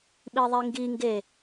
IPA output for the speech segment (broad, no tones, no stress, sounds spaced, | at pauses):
ɓ i ðˤ i ŋ ɡ i ŋ ɡ e